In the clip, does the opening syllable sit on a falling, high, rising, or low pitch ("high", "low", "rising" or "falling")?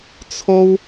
high